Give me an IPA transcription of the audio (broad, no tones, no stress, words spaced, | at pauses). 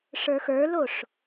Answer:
ʂə˞xə˞loʂ